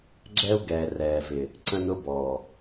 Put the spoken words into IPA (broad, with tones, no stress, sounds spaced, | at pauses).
ɡ͡ǁ ɛ˦ u̯ ɡ ɛː˨ r ɛː˨ v ɪ˨ | ǀ ə̃˦ n ʊ˦ b ɔː˨